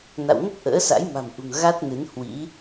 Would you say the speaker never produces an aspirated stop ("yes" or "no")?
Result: yes